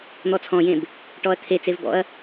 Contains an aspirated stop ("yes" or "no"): yes